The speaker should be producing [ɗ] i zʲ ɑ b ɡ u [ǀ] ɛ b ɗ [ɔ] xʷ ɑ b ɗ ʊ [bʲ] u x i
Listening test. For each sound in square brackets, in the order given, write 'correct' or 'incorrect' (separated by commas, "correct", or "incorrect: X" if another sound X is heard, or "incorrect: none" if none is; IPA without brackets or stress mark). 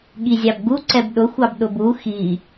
incorrect: ɠ, correct, incorrect: ʊ, incorrect: b